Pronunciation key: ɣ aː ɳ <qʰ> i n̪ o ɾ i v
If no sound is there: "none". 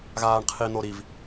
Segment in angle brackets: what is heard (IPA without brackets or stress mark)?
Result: qʰ